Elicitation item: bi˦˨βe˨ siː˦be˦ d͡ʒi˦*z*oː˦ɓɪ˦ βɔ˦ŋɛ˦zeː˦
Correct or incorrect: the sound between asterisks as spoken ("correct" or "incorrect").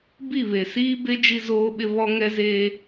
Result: correct